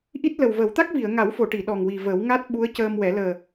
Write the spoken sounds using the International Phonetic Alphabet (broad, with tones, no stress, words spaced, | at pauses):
ʔi˦˥t̚lə˨˩wvə˨˩˦w t̪a˦˥k̚vi˨˩˨ə̯ŋa˨˩˦wfo˨˩˨ ʈi˨˩˨ ɗɔ˨˩ŋwi˨˩ və˨˩˦wŋa˦˥t̚ɓu˧˥ə̯ cəː˧mwɛ˨˩˦ ləː˨˩